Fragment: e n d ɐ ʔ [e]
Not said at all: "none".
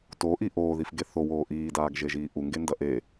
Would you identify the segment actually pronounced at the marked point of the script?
e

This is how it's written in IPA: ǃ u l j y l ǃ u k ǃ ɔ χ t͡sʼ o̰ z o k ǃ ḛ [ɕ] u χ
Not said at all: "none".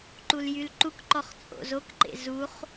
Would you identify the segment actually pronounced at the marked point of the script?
z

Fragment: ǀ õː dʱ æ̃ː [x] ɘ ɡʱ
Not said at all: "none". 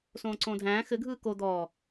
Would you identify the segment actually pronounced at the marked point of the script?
x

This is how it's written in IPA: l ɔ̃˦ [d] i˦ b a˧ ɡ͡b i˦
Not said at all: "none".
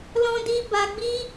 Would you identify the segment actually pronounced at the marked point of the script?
d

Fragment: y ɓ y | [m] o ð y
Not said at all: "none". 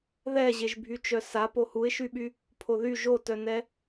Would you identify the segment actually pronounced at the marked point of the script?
pʰ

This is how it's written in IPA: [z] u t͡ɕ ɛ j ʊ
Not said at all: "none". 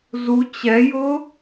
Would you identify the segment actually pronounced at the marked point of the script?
z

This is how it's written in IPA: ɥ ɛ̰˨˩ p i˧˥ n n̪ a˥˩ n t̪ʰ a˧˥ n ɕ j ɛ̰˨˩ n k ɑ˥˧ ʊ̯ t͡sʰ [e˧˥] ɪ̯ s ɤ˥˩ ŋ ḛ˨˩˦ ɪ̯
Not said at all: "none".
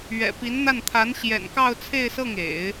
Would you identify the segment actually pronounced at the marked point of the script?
e˥˧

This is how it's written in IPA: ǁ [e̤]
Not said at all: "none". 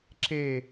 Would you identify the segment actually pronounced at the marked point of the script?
e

